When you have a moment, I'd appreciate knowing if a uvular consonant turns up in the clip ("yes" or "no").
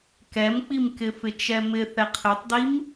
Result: yes